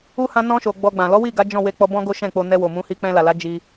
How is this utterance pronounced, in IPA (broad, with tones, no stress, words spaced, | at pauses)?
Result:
u˧hã˧nɔ̃˧ʃo˨ ɡ͡bɔ˧ɡ͡bã˨ lɔ˨˦ wi˦˨ɡa˨˦ d͡ʒɔ̃˦˨we˧k͡pɔ˧bɔ̃˦ ɡo˦ʃɛ̃˦˨k͡po˧ nɛ˧wo˨mũ˨˦hi˧ k͡pɛ̃˧la˨la˨˦ d͡ʒi˧